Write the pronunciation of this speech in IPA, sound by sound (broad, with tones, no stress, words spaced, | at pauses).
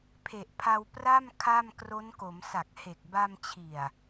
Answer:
pʰe˨˩ʔpʰa˧w pra˥˩m kʰa˥˩m kro˦˥nko˩˦m sa˨˩k̚he˨˩k̚ba˧mt͡ɕʰi˨˩a̯